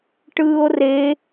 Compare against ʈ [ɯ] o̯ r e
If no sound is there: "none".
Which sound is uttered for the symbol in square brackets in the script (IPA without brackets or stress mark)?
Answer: ɯː